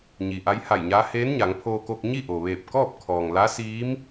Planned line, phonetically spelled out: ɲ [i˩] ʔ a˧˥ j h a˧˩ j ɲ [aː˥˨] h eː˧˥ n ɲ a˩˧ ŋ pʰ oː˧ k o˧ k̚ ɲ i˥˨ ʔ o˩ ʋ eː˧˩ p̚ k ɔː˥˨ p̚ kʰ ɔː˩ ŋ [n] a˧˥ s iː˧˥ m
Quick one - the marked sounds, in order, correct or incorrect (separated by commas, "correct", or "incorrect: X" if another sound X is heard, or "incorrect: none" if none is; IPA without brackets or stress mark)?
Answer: correct, incorrect: aː˧˥, incorrect: l